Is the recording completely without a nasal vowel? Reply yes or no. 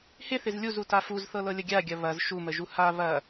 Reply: yes